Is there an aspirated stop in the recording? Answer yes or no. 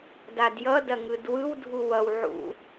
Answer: no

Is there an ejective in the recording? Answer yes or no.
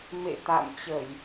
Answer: no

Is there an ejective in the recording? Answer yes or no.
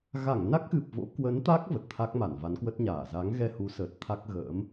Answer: no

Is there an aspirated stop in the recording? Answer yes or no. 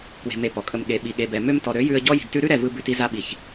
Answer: no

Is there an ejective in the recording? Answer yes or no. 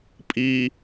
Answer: yes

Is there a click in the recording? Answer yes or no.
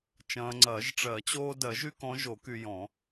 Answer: yes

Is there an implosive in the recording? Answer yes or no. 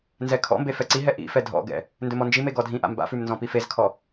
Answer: no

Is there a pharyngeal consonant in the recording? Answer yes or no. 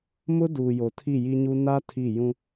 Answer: no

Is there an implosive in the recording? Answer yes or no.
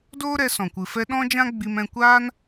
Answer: yes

